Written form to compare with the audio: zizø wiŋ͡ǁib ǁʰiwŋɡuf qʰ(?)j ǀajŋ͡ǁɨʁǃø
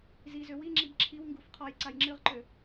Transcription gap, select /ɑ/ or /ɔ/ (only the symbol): ɔ